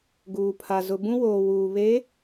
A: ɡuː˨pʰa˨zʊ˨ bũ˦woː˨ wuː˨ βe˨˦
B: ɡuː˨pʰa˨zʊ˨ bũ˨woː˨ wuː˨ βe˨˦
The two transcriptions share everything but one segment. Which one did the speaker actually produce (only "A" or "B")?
A